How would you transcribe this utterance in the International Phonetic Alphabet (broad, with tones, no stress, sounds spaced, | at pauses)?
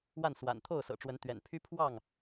w a˥˨ n s w a̰˨˩ n t̪ʰ o˥˨ ʊ̯ s ɤ̰˨˩ ʈ͡ʂ w ə˨˦ n t̪ ɥ ɛ̰˨˩ n pʰ y˦ pʰ w ɑ˥˨ ŋ